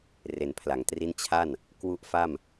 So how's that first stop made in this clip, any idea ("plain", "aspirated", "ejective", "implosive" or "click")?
aspirated